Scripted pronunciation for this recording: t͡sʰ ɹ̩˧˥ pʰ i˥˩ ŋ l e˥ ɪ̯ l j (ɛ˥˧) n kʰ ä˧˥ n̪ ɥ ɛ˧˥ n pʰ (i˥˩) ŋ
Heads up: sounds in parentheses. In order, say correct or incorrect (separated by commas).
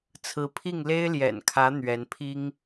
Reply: incorrect, incorrect